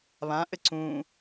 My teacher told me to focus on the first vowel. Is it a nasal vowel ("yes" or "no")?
yes